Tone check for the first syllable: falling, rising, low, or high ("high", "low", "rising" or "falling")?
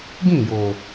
falling